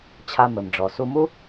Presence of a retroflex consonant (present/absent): present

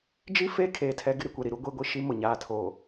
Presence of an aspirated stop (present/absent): present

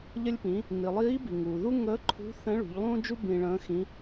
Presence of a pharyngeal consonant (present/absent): absent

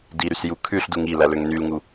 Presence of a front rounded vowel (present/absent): present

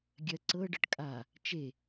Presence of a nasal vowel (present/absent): absent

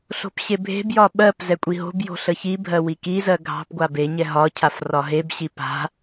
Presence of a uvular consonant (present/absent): absent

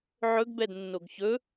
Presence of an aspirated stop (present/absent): absent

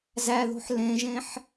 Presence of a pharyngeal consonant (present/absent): present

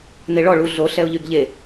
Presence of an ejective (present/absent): absent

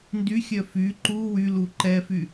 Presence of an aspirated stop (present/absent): absent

